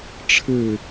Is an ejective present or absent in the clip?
absent